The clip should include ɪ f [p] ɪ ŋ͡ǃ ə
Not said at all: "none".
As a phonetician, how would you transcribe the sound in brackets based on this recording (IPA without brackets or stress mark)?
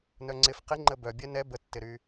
q